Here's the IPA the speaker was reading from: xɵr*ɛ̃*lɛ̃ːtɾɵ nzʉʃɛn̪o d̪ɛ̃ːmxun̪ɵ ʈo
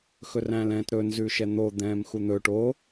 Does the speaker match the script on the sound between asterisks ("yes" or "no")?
no